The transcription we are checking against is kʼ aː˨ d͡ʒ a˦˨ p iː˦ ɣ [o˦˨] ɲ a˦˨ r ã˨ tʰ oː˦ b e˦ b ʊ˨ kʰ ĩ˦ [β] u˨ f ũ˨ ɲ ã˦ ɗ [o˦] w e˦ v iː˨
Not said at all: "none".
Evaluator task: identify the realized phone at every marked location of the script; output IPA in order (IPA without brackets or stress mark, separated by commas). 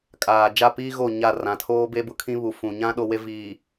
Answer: o˦˨, β, o˦